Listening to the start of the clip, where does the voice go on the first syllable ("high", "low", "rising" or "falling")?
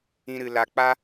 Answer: high